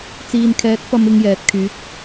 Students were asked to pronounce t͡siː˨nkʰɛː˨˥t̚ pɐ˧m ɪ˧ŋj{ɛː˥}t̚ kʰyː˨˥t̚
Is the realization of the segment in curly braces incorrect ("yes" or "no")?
yes